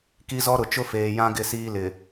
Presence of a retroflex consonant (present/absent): absent